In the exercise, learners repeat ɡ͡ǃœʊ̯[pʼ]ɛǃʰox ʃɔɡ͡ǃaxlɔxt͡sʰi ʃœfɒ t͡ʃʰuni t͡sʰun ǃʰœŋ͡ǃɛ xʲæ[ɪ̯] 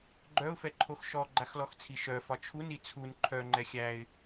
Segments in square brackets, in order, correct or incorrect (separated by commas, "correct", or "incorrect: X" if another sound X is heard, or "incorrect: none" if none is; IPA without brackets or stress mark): incorrect: f, correct